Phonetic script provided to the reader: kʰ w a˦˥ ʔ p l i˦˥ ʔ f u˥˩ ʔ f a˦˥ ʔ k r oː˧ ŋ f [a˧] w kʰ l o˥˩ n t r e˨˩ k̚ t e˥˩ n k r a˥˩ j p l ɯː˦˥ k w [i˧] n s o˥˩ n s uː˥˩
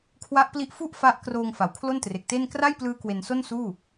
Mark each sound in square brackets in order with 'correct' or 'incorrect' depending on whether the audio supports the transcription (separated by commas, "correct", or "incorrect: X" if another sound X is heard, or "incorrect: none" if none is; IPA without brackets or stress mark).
incorrect: a˩˦, incorrect: e˧